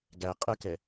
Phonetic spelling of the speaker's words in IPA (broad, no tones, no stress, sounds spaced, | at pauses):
ɡ æ qʼ ə k ɛ